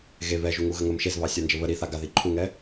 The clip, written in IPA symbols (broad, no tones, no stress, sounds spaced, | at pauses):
ɣ e β ɛ ʒ u ŋ u ɣ ə ŋ ə m ʃ e z β ɑ sʲ a n d͡ʒ ə β ə ɾ i θ a ɡ a ð i ǃʰ u ŋ ɛ